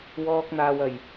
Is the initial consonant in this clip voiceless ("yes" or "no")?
no